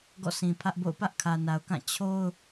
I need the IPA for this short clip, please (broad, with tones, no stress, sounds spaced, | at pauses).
ɡ ɔ̰˦˨ sʰ ĩ˨ pʰ ä˦ ʔ b o̰˦˨ ʊ̯ p ä˦ ʔ kʰ ä˨ n a˨ ʊ̯ k ã˦˨ t͡ɕʰ o˦ ʊ̯